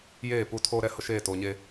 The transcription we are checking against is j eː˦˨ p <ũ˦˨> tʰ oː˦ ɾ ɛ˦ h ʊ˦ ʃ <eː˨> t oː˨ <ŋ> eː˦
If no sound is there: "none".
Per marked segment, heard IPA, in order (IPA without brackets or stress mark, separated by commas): u˦˨, eː˦˨, ɲ